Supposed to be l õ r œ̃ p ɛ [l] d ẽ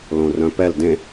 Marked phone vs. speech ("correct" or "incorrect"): correct